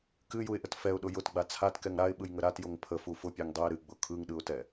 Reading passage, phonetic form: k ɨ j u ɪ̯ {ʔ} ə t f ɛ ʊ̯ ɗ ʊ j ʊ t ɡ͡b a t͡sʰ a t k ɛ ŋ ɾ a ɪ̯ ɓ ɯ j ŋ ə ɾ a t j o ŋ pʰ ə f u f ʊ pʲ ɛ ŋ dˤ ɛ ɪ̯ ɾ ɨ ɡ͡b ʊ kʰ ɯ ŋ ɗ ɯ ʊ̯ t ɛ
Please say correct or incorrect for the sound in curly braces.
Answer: correct